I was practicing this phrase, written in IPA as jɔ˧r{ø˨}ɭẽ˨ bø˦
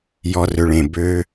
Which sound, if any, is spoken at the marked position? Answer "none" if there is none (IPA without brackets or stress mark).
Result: ø˨